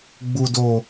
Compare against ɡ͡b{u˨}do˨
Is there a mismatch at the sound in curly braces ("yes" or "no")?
no